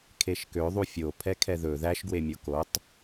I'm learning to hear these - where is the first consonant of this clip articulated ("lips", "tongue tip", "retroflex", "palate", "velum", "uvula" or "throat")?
velum